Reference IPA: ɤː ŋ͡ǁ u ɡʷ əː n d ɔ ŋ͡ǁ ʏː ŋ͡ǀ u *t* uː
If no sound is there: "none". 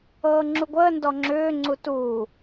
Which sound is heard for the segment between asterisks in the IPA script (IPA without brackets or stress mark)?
t